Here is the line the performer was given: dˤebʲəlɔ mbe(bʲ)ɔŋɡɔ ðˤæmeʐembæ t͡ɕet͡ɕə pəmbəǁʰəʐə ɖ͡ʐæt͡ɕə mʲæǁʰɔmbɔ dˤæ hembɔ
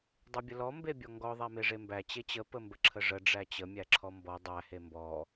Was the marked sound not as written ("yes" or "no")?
no